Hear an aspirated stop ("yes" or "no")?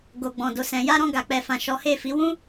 no